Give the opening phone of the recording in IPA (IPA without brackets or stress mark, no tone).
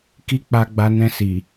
k